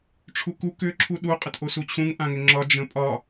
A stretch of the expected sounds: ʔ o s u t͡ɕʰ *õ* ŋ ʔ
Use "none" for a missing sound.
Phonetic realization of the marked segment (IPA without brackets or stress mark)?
ũ